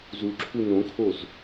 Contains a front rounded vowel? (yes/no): no